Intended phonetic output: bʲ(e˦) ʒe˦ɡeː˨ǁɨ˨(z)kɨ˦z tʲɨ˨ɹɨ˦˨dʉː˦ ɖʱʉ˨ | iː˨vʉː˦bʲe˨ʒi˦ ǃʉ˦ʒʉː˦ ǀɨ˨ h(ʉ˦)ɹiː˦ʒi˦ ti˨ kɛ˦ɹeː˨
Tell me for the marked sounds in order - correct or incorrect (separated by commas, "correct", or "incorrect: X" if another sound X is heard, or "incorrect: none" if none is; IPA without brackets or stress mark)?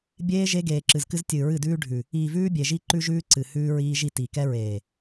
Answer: incorrect: eː˦, correct, incorrect: ʉː˦